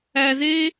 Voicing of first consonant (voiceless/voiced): voiced